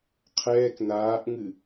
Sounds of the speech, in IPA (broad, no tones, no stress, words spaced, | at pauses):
qʰɛːk naːʔŋɨ